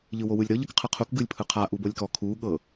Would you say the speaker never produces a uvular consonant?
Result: no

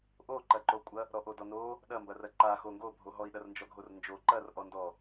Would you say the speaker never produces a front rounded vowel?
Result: yes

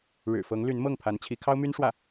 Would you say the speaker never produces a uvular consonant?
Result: yes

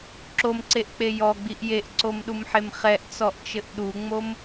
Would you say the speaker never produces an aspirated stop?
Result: yes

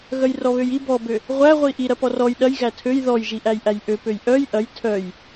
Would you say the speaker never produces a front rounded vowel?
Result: no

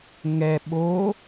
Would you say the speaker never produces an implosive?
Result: no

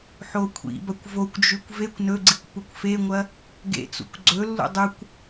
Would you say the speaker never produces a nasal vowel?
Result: yes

